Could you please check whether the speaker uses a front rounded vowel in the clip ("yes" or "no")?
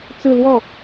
no